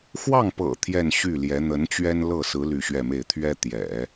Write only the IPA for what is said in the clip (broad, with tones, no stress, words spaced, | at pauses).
xwɑ˥˩ŋpɤ̰˨˩ t̪ʰjɛ˥˧nɕy˥˩ljɛ˧˥ n̪ə˧˥n t͡ɕɥɛ˥n lɤ˥˩sɹ̩˧˥ ly˥˧ɕɥɛ˥˧me˥˩ɪ̯ t̪ʰɥɛ˥t̪jɛ̰˨˩˦